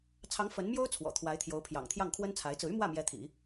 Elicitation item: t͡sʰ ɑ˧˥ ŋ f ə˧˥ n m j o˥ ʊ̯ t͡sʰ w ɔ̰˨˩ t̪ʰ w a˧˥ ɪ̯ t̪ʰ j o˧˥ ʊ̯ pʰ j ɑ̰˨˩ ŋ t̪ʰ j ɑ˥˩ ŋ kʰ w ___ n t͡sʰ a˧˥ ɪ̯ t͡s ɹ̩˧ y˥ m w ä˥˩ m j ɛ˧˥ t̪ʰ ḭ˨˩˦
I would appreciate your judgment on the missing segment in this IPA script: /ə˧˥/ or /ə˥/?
ə˥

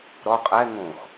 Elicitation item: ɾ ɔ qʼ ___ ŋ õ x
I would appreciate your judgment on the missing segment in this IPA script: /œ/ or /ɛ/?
ɛ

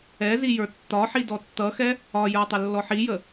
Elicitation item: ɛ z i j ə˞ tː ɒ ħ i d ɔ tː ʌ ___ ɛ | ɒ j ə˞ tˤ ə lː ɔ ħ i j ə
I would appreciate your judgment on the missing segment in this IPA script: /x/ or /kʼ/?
x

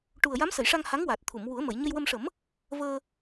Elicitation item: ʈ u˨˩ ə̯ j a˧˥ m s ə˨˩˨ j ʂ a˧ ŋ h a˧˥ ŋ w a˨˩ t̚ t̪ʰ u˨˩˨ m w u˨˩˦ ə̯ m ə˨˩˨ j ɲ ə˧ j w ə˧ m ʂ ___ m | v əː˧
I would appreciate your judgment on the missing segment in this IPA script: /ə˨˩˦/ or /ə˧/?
ə˨˩˦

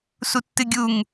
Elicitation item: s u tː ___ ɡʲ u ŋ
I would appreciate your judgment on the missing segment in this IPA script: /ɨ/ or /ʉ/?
ɨ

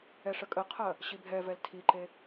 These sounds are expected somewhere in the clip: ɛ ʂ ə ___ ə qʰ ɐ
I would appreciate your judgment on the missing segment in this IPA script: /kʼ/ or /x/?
kʼ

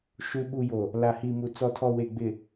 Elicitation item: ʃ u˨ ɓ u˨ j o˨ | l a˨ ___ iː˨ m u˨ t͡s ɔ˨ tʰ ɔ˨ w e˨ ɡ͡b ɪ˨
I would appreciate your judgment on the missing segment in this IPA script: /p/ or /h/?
h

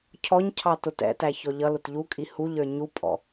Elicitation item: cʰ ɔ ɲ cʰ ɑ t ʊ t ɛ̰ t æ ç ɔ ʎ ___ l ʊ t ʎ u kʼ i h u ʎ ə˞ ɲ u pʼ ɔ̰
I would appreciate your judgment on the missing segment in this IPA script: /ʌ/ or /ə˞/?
ʌ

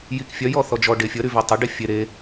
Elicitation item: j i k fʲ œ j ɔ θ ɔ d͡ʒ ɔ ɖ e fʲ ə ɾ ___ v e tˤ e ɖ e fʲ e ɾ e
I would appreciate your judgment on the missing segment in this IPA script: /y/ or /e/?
y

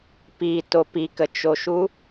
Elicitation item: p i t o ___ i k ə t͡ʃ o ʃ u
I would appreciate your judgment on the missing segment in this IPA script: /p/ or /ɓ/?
p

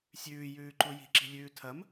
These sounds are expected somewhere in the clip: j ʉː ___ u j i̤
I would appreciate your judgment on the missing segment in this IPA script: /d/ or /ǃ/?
ǃ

